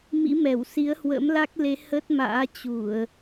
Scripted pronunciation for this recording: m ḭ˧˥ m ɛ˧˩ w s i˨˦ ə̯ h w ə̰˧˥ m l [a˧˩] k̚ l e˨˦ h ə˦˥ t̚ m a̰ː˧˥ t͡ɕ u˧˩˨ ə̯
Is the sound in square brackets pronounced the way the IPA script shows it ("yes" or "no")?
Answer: no